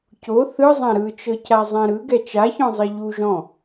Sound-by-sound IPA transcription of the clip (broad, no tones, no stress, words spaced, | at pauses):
co θɯzˤã ɾɯt͡ʃɤ cazˤɛ̃ɾɯ ɡɛt͡ʃaçɔ̃zˤe ʎu ʒɔ̃